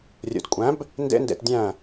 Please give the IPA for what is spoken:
rʲ ṵ˨ d kʷʼ æ̃˨˦ b | n d ḛ˦ n d ḛ˧ t dʲ æ̃˦˨

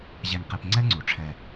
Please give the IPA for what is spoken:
ʑ ɛ˨ ŋ q e˨ p ŋ͡ǀ ɛ˥ ŋ͡ǀ u˩ ʈ͡ʂʰ ɛ˨

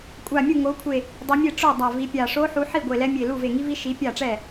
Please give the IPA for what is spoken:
kʷʼ a˧˩ mʲ u˥˩ ŋ o˨˥ kʷʰ e˧˩ | dˤ e˨˥ mʲ e˥˩ ʈ͡ʂ o˥˩ dˤ a˧˩ v i˨˥ pʲ a˧˩ ʂ o˦˥ ħ u˨˥ ħ i˥˩ ɡʷ e˧˩ l ɛ˦˥ mʲ e˧˩ l u˥˩ v e˧˩ ŋ i˦˥ v i˦˥ ʃ i˨˥ pʲ a˥˩ ʈ͡ʂ ɛ˥˩

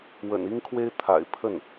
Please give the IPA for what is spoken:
w ə̰˨˩ n i˥ ŋ kʰ w e˥ ɪ̯ t̪ʰ a̰˨˩ ɪ̯ pʰ ə˥˩ n

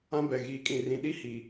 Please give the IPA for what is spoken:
ã˦ b ɛ˨ ɣ iː˨ kʼ ĩ˨ r ĩ˨ ɗ i˦ h i˨

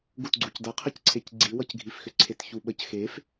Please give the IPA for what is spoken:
ɡ u t ɡ͡ǀ u c d ʌ qʰ ə c ǀʰ e c ɡ͡ǀ i w ʌ c ɡʱ i f x ʏ ǀʰ e t ç u ɓ ə c x e f

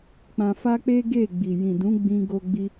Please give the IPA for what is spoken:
k͡p ã˧ f a˦ k͡p e˦ ɡ e˦˨ ɡ͡b i˨ j ĩ˨ d ũ˨˦ ɡ͡b ĩ˦ ɡ o˦ ɡ͡b i˦

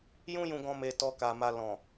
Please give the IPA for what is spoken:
j ũ˦ j ũ˧ ɡ ɔ̃˧ m e˧ t ɔ˧ k a˨ m a˧ l ɔ̃˨

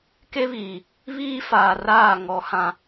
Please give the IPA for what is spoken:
k e˦ β iː˨ | β iː˦ f aː˨ r aː˦˨ ŋ ɔ˨ h ã˨

